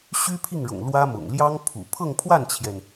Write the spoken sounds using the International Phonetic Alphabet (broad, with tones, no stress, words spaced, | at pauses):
ɕy˥pʰi˥˩ŋɻʊ̰˨˩ŋ lwä˥mʊ̰˨˩ŋ ljɑ˥ŋpʰṵ˨˩ pʰɤ˥˧ŋpʰwa˥˩nt͡ɕʰjɛ˩n